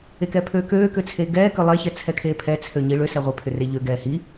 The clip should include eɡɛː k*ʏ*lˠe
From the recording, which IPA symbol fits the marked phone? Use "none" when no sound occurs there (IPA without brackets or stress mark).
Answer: ʏ